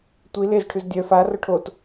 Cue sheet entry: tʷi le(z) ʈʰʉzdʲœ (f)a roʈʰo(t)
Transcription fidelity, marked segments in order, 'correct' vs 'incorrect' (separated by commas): correct, correct, correct